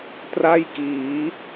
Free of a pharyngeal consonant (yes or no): yes